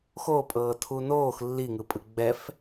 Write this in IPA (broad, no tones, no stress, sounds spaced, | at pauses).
x o pʼ ɤː tʰ u n oː x lː i ŋ ɯ pʼ ɯ ɡ͡b ɛ f